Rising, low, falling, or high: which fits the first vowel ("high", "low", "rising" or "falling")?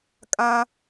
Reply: high